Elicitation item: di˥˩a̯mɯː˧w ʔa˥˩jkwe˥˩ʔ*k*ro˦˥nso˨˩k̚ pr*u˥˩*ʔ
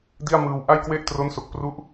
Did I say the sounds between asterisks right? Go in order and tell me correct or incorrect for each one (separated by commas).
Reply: incorrect, incorrect